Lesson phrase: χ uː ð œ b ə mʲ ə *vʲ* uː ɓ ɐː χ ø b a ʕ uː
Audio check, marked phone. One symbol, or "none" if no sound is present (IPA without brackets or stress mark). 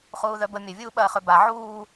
vʲ